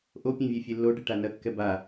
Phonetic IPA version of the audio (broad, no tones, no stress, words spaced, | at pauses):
ʔopʲɛ̃ vʲefʲelːoɖɪ ʈanɐkːɛ ba